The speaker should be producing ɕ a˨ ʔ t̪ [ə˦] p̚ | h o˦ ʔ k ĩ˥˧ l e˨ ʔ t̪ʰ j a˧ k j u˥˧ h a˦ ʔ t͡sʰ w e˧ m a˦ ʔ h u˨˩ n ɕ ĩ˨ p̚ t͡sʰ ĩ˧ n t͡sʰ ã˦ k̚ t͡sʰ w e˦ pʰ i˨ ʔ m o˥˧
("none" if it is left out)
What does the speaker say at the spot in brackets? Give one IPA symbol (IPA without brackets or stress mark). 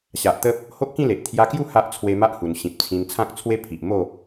ə˦